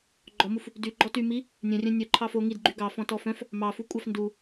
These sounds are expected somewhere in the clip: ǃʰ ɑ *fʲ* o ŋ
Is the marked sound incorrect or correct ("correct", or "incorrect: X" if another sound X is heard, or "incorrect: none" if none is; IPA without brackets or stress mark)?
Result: incorrect: f